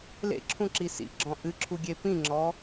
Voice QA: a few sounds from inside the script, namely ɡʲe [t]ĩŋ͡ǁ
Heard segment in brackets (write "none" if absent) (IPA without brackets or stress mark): p